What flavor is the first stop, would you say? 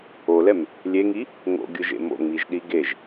plain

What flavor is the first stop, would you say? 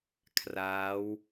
aspirated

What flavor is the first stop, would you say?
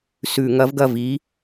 plain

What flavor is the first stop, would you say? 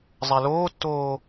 plain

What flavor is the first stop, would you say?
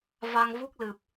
plain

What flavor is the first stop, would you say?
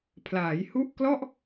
aspirated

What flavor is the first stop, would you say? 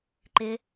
click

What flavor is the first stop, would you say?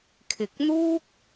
aspirated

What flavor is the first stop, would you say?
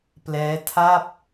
plain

